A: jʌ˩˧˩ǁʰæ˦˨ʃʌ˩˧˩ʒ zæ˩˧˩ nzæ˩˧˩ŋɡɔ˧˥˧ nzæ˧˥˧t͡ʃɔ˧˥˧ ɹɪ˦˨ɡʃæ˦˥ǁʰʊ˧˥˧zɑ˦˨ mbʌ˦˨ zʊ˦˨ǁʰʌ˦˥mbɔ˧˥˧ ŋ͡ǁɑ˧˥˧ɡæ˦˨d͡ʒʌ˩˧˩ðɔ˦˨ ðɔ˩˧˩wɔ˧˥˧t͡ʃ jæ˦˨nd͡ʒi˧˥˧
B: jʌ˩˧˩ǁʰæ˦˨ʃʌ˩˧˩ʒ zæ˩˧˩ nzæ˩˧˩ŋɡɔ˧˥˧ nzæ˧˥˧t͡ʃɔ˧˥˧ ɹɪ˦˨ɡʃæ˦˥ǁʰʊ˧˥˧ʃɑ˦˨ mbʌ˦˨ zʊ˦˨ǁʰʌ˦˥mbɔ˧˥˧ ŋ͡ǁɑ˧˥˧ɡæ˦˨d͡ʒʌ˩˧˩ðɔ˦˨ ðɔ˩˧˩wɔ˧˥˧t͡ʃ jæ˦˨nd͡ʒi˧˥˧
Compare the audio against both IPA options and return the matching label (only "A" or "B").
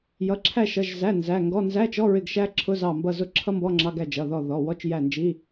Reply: A